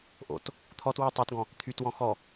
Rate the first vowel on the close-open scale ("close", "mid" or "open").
mid